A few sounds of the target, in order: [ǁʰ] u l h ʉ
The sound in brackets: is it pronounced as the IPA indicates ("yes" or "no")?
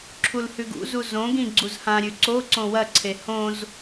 yes